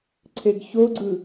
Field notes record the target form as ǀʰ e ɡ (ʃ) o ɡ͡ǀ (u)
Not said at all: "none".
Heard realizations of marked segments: ç, ɯ

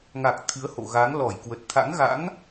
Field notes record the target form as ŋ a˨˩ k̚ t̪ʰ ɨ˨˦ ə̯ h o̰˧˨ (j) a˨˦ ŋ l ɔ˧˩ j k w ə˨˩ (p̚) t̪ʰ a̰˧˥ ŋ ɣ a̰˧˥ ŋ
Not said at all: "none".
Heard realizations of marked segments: ɣ, t̚

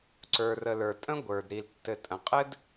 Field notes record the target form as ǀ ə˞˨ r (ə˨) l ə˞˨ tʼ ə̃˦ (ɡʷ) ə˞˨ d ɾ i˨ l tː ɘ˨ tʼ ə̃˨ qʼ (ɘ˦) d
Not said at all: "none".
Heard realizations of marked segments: ə˨, ɡʷ, ɘ˦

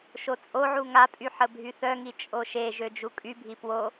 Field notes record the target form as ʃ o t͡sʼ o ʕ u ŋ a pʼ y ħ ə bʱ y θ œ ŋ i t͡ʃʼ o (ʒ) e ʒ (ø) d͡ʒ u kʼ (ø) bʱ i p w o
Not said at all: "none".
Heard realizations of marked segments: ʃ, ø, y

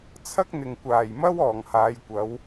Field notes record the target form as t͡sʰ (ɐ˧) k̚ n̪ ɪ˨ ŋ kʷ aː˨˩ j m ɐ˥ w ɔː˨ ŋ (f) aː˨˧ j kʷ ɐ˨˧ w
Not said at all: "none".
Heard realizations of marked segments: ɐ˥, h

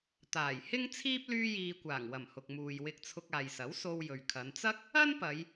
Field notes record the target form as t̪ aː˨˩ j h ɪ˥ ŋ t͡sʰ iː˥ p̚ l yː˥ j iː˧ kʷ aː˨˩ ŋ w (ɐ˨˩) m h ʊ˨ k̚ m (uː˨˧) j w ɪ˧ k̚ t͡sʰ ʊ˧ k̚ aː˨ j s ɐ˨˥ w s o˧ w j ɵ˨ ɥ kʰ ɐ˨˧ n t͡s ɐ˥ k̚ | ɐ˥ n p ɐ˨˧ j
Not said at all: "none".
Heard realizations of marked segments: ɐ˨˩, uː˨

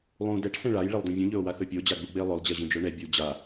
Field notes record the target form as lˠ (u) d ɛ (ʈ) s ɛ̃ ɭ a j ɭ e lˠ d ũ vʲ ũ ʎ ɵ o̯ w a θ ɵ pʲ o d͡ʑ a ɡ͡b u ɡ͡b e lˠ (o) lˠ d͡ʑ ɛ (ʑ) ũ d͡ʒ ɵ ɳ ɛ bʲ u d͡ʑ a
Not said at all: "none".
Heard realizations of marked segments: ũ, ʈ, ɵ, ʑ

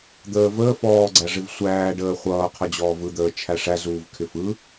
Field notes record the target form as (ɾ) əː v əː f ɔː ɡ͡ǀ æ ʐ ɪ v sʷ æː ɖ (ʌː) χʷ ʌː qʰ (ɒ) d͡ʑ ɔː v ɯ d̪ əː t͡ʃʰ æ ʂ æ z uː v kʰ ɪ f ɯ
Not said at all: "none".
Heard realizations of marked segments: d̪, əː, ʌ

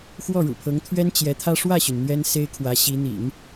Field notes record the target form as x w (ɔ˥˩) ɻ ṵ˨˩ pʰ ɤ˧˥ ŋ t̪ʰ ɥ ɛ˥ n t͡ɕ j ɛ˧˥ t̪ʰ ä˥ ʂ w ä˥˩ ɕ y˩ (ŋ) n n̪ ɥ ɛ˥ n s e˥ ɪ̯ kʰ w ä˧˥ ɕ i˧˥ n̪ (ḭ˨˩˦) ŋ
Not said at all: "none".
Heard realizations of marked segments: ɔ˥˩, none, ḭ˨˩˦

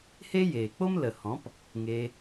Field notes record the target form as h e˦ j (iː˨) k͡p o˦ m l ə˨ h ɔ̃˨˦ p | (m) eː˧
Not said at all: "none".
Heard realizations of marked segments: eː˨, ŋ

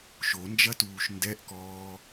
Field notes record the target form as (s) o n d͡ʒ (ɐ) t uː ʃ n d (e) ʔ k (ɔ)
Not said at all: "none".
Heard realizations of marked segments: ʃ, ɐ, ɛ, ɔː

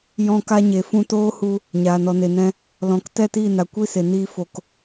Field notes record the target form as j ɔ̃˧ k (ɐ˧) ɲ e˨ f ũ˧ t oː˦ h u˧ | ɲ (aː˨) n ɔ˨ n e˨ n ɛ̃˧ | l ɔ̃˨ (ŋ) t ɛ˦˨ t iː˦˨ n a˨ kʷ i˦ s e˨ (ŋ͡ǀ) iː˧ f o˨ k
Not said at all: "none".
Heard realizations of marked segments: a˧, aː˨, k, n

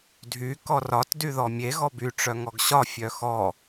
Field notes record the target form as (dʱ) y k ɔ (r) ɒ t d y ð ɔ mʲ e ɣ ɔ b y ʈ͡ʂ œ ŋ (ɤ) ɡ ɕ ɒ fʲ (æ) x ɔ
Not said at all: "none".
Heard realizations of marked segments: dʱ, r, ɔ, œ

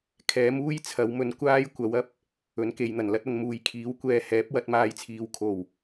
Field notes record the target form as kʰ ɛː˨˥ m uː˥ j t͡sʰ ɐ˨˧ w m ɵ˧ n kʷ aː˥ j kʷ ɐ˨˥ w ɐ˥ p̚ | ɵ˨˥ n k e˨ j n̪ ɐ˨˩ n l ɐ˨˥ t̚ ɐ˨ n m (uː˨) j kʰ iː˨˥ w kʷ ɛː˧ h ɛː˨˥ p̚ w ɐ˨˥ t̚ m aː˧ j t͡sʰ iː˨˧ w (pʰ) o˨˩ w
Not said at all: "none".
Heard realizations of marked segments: uː˨, kʰ

